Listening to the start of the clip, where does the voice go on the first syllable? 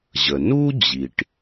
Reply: low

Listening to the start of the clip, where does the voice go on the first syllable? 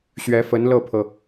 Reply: rising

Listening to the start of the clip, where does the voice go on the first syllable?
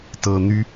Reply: low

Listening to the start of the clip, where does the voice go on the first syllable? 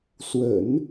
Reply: low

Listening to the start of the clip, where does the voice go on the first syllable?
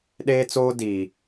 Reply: high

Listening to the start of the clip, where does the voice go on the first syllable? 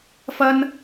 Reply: high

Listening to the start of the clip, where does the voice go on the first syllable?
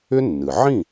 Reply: high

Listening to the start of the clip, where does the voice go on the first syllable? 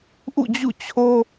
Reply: falling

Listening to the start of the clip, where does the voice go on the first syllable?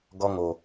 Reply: high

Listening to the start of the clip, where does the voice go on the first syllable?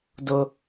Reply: high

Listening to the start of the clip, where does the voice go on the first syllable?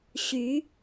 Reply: rising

